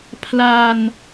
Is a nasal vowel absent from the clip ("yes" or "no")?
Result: yes